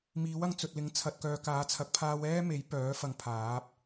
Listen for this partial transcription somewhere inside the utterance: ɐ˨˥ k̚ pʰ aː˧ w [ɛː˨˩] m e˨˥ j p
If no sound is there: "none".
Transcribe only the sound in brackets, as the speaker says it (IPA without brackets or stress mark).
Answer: ɛː˥